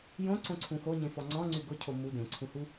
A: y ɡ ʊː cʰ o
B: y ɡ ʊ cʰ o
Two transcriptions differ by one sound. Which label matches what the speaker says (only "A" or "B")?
B